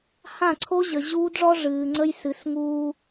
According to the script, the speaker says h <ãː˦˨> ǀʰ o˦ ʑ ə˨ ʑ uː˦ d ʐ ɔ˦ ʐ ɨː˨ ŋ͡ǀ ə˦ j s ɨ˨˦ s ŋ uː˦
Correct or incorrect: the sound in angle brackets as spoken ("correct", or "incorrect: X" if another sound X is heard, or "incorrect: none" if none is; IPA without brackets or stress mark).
incorrect: ã˦˨